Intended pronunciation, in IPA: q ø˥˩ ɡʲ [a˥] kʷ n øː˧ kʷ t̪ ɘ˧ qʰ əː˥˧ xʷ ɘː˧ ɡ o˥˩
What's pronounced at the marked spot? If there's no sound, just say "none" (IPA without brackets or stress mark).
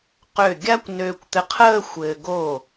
a˥